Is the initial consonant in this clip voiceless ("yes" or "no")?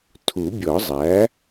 yes